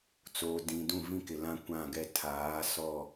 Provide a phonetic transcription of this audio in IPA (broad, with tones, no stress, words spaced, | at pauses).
t͡soː˨dĩ˨ dũ˦˨vĩ˦kɪ˨lã˦ kʷã˦˨ɡɛ˦ tʰaː˨˦sɔ˦˨